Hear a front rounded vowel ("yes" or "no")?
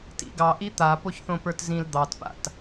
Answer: no